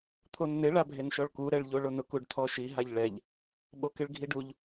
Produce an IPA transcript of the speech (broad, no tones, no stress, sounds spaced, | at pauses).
t̪ʰ o n n̪ ɪ ɭ a bʱ e n ʃ ɔ ɭ k u ɾ ɛ ɭ ʎ o ɭ o n ʊ k u ɖ t̪ʰ ɔ ʃ i ɦ a ʎ ɭ ɛ ʎ | ɓ o k ɪ ɭ ɡʱ i ɖ u ʎ